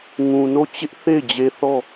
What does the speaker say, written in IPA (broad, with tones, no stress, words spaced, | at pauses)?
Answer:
ŋũ˨no˦˨t͡ɕɪ˦ʔ θe˦˨ɪ̯d͡ʑe˦ θɔ˦˨